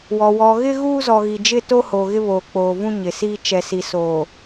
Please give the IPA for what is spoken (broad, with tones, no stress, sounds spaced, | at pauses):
w ɔ˨ w ɔ˨ ɣ ɪ˦ ɣ uː˦ z ɔ˨ ɣ i˨ d͡ʒ ɪ˦˨ t o˦ h o˨ ɣ ɪ˦ β oː˨ k͡p oː˨ v ũ˦ ɲ ɪ˨ s iː˦ t͡ʃ ɛ˨ s i˨ s oː˨